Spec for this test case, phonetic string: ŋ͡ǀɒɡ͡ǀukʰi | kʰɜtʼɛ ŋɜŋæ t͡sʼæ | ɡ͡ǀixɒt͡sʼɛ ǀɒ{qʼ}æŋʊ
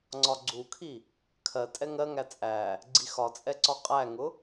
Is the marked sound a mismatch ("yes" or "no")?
no